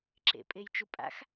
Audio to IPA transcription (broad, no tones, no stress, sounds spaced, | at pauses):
ǁ ḛ pʼ e j t͡ʃ u pʼ a̰ x